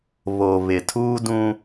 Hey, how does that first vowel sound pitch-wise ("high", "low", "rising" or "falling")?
low